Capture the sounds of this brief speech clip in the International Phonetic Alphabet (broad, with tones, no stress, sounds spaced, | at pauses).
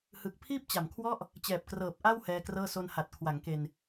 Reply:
h ɯ˨˩ k̚ pʰ iː˥˩ p̚ t͡ɕ a˨˩ m kʰ w ɔ˥˩ ʔ | t͡ɕ ɛː˨˩ p̚ k r ɤː˨˩ p̚ ʔ a˥˩ w h ɛː˧ k r ɤː˥˩ s o˧ n h a˨˩ t̚ kʰ w a˩˦ ŋ k e˧ n